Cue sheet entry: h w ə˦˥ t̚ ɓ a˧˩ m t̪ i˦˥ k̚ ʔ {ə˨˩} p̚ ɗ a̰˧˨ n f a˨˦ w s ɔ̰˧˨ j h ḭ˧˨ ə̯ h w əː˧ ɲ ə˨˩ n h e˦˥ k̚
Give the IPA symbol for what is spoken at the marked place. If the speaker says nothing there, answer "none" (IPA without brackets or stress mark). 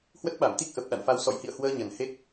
ə˨˩